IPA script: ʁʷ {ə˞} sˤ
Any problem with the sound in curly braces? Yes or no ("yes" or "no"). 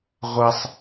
yes